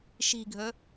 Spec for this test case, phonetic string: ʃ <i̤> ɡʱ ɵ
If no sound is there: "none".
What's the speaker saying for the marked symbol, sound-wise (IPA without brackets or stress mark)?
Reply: i̤